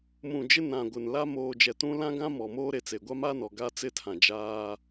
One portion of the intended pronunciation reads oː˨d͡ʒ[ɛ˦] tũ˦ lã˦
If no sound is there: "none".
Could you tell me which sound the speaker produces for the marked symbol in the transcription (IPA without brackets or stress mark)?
ɛ˨